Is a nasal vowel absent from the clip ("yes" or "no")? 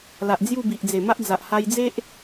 yes